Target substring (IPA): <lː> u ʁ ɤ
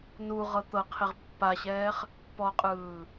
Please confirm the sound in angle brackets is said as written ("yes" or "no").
no